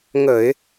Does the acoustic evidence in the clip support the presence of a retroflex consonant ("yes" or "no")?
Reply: no